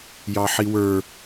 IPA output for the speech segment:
jɑħiwə˞

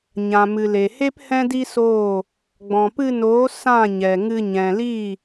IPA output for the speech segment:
ɲã˨mɨ˨le˨he˦p hɛ̃˦di˦soː˦˨ | ɡ͡bɔ̃˨pɨ˧noː˨˦ sã˦˨ɲɛ˨ŋɨ˧ ɲɛ̃˨li˦˨

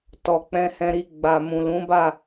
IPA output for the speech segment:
tɔ˨k͡pɛ̃˧hɛ̃˧ɾi˧ ɡ͡ba˨mũ˨lũ˨˦ ba˦˨

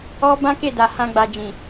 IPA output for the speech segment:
ɔ˦ bã˦ke˦˨da˨ hã˧ɡ͡ba˨d͡ʒĩ˨

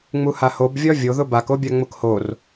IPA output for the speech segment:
ŋ͡muhahob vʲɒvʲoðʊ bakobʲa ŋ͡mʊkhor

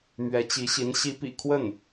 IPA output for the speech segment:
mɥɛ˧˥t͡ɕi˧˥ɕi˧˥n ɕi˧˥pḭ˨˩kʰwə˥˩n

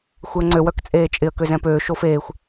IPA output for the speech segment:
xʷɪə̯ŋ͡ǀø wœkt͡sʼeːt͡ʃʼɪə̯ køzɛ̃pøː ʃofeːxʷ

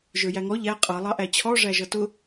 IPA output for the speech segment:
ʒə˞jæŋɔ ʎæ qʼʌ lˠɑʔæt͡ɕʰɔ ʐæʒʌtʊ

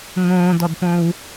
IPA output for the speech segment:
ŋõːdɔdpõw

